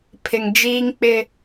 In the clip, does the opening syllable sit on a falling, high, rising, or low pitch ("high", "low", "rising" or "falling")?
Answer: low